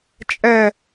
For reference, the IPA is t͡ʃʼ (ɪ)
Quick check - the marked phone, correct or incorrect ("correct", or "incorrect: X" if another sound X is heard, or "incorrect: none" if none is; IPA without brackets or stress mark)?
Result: incorrect: ɛ